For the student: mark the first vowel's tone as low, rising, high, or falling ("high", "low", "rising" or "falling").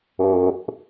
low